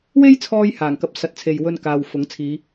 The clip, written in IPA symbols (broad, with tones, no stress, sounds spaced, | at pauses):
w e˥ j t͡sʰ ɔː˧ j h aː˨˩ ŋ k ɐ˧ p̚ s ɐ˨˥ t̚ t͡sʰ e˨ j w ɵ˧ n k aː˨ w f ʊ˨˥ ŋ t͡sʰ iː˨˧